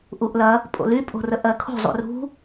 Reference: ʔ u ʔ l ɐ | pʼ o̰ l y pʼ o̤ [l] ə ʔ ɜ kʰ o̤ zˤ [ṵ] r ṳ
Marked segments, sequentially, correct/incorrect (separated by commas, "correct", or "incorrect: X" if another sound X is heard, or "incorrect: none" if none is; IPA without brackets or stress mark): incorrect: r, correct